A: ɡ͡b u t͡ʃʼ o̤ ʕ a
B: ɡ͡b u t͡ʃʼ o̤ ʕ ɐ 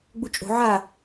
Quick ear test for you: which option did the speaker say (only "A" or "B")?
A